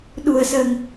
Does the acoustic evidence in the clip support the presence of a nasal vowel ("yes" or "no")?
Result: no